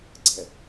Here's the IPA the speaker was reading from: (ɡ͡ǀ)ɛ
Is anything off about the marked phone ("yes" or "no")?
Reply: no